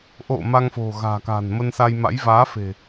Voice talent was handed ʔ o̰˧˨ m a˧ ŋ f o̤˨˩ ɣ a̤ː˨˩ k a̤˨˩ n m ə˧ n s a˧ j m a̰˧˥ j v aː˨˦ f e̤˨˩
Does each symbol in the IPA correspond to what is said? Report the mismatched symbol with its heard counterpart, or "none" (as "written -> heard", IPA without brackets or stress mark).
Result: none